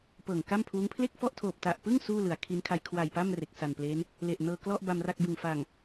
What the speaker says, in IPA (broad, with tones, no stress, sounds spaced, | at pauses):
p ɤː˨˩ ŋ k a˥˩ m pʰ uː˦˥ ŋ pʰ l e˥˩ k̚ f ɔ˥˩ ʔ tʰ oː˨˩ p̚ t a˨˩ ʔ p ɯ˥˩ ŋ s uː˥˩ l ɯ˩˦ a̯ kʰ i˦˥ n kʰ a˧ j kʰ w a˨˩ j p a˥˩ m r e˨˩ k̚ s a˨˩ n p l eː˦˥ n | l e˨˩ ʔ n ɤː˧ k l ɔ˥˩ ʔ b a˧ m r a˥˩ k̚ b ɯ˨˩ ŋ f a˨˩ ŋ